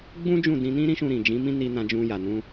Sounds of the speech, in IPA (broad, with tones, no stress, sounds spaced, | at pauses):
ɡ͡b ũ˦ d͡ʒ ũ˦˨ d ĩ˧ n ĩ˦ ɾ ĩ˦ ʃ ũ˧ ɾ ĩ˨ d͡ʒ ĩ˨˦ m ĩ˦ n i˧ n ã˧ d͡ʒ ũ˧ j a˨ n ũ˧